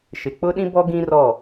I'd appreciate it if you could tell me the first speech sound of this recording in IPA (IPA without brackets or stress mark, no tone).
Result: ʃ